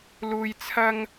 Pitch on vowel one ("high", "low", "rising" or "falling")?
low